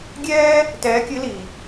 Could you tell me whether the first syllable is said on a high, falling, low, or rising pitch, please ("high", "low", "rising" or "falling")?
high